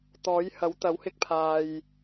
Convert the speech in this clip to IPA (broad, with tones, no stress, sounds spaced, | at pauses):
t̪ ɔː˨˥ j h ɐ˨˥ w t̪ ɐ˨˥ w h ɪ˧ k̚ pʰ aː˨ j